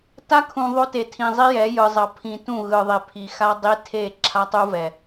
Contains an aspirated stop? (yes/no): yes